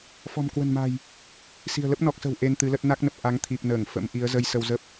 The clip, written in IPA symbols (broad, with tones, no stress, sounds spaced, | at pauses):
f ɔ̤˨˩ m k w ə̤˨˩ n m a̤˨˩ j | s i̤˨˩ ə̯ l ə˦˥ p̚ n ɔ˨˩ k̚ s ə̤˨˩ w ʔ e˧ n t̪ ɨ˨˦ l ə˦˥ t̚ n a˦˥ k̚ n ə˨˩ p̚ ʔ a˨˦ ŋ t̪ʰ i˨˩ p̚ n əː˧˩ ŋ f ə̰˧˥ m ʔ i˨˦ ə̯ z ə˧ j s ə˧ w z ə˦˥ p̚